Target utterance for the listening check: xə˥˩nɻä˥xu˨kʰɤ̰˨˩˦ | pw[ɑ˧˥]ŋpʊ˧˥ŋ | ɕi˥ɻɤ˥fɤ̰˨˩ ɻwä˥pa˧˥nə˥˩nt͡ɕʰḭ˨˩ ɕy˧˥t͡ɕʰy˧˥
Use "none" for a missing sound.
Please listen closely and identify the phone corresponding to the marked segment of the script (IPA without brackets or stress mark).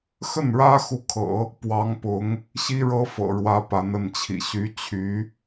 ɑ˧˥